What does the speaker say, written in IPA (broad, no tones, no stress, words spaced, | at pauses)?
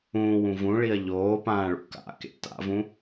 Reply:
ũːwũ vũɭiɐ̯ ʎoːpãːɭṵ ka̰kḛ ta̰vũ